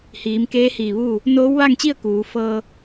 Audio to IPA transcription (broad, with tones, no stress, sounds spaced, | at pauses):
h iː˩˧ m k eː˧˥ h iː˧˩ ʋ uː˥˨ | n oː˧˥ w ʋ a˥˨ ŋ t͡ɕ i˥˨ ə̯ k uː˩˧ f ɤː˧